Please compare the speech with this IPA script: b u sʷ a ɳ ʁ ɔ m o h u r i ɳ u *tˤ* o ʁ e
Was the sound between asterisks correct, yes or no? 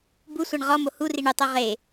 yes